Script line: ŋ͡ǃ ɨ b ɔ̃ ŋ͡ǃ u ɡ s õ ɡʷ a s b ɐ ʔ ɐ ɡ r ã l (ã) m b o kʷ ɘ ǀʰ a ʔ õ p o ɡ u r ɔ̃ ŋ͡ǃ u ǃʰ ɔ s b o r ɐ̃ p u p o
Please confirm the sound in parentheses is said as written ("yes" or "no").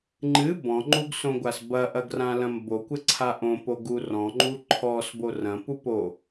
no